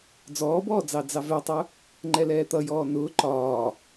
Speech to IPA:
d͡z ɔː b ɔː d͡z ɑ d͡z ɑ v ɛ tˤ ʊ | ŋ͡ǃ ɛ l ɛː t̪ ʌ j ɔː n ʊː ǃ ɒː

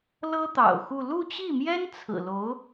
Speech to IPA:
l ɤ˥ t̪ ɑ̰˨˩ ʊ̯ x u˥˧ l u˥˧ t͡ɕ i˥˩ m j ɛ˥ n t͡sʰ ɹ̩˨˩ l o˧˥ ʊ̯

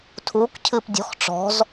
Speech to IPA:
tʰ uː k cʰ ɨː p dʲ ɔ̤ x ʈ͡ʂ ɔ̤ z

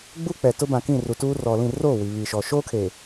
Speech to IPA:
ɡ͡b u˦ k͡p ɛ˨ t ʊ˦ b ã˨ k ĩ˦˨ r u˨ t uː˦ r ɔ˨ l ĩ˦˨ r oː˦˨ w i˨ β i˨ ʃ ɔ˨ ʃ oː˦ kʰ e˨

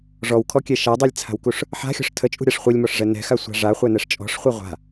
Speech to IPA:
ʐ ɔ w kʰ ɔ kʲ ɛ ʃ a dˤ i lʲ t͡sʰ a̤ w k u ʂ | ħ a̤ xʲ ɔ̤ ʂ tʰ ə t͡ʃʼ ṳ ɾʲ a ʂ χʷ i lʲ m ɔ ʂ ʐ ɛ n ɛ̤ x a sʷ a̤ ʐ a χʷ ɛ n ɛ ʂ t͡ʃʼ ɔ̤ ʂ χʷ i ʁʷ a̤

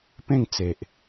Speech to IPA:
p ẽ˥˧ ŋ t͡s e˨ ʔ

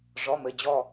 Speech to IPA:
ʐ ɔ˩˧˩ m ɘ˩˧˩ d͡ʑ ɔ˧˩

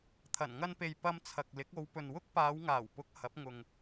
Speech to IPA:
t̪ʰ ɐ˨˩ n ŋ ɐ˧ n p e˨ j p ɐ˧ m t͡sʰ ɐ˨ k̚ l ɪ˨˥ k̚ o˨˧ w p ɵ˨ n w ʊ˥ k̚ p aː˨˧ w ŋ aː˨˩ w p ʊ˨˥ k̚ h ɐ˨˥ p̚ ŋ ʊ˨ ŋ

